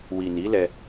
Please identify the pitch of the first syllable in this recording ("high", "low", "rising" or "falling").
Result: low